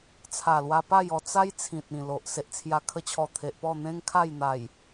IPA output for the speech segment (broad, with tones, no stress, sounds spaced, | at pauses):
t͡sʰ a˨˩ l w a˧ p a˥˧ j ɔ˧ t͡s a˦ j t͡sʰ ĩ˨ t̚ ĩ˨˩ l o˨ ʔ s e˨ ʔ t͡sʰ j a˨˩ kʰ ə˧ t͡ɕʰ ɔ˨˩ t̪ʰ e˨ ʔ p ɔ˥˧ n̪ ẽ˦ ŋ kʰ a˥˧ j n̪ a˨˩ j